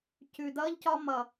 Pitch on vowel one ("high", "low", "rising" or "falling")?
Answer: low